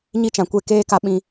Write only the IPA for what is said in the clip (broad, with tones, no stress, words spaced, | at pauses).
ɲi˦t͡ʃã˨kʷe˦˨ keː˦ka˧ ɓĩ˧